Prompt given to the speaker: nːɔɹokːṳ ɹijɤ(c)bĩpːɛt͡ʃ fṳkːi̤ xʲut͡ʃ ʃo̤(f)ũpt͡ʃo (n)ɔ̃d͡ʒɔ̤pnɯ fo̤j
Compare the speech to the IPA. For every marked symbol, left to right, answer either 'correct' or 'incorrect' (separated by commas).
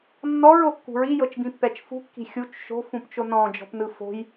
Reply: incorrect, correct, correct